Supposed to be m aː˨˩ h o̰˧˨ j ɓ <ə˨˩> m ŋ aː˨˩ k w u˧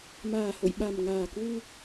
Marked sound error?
yes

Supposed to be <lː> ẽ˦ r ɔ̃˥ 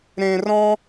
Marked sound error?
yes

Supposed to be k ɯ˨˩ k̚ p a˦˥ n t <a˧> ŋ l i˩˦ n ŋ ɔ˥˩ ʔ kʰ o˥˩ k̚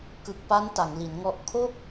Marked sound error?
yes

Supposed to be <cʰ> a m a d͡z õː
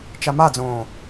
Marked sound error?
yes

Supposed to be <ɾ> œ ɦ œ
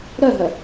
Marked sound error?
no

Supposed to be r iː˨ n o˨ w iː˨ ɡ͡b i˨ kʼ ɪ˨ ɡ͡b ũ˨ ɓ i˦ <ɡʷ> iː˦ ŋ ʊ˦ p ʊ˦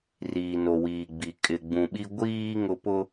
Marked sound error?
no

